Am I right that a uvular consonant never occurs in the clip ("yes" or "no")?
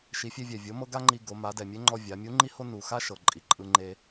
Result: yes